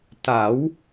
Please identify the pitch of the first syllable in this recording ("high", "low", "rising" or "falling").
rising